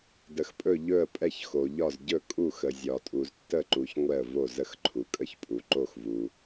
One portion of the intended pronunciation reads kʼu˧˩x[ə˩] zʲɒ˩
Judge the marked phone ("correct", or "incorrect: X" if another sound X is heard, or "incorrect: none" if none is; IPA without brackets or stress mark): correct